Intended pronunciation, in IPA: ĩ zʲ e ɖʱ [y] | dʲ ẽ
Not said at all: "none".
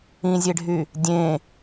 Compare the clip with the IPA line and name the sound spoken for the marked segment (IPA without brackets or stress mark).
y